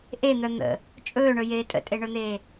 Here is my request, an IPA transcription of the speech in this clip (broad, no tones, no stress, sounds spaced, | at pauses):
ʔ e n̪ œ n̪ ə̰ | t͡ʃʼ ɵː ɳ ɵ j eː tʼ ə̰ tʼ e ɳ ɵ n̪ eː